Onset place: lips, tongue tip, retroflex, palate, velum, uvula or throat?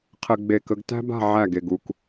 uvula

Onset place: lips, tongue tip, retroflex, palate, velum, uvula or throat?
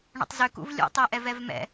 retroflex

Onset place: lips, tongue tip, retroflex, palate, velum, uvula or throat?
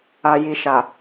palate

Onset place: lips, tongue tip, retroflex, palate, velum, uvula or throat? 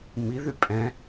lips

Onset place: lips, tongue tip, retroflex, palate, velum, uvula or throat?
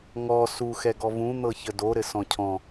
velum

